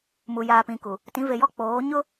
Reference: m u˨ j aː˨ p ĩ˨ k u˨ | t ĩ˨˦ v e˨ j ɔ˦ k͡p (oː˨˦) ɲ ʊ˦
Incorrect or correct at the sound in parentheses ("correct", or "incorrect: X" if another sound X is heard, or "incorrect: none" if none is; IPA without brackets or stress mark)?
correct